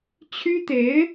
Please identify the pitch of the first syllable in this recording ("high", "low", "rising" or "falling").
high